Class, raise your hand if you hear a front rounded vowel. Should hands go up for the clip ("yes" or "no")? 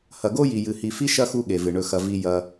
no